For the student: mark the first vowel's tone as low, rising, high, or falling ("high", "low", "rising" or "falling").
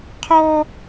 high